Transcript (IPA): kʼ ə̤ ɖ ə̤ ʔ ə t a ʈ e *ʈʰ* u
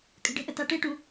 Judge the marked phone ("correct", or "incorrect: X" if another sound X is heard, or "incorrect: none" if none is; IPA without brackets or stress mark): incorrect: ʈ